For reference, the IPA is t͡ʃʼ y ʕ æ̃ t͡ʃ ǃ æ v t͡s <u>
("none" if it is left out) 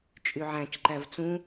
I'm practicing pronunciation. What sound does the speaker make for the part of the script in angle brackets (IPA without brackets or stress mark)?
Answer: ũ